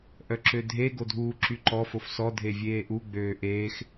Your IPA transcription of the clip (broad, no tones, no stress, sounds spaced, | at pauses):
ʔ œ ǁ ø dʱ e ɡ o dʱ uː ǁ y ǃ ɔ f o f s ɔ dʱ e vʲ eː ʔ u ɡ͡b øː ʔ eː x